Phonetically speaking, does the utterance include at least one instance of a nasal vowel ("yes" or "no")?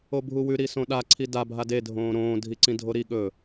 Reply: yes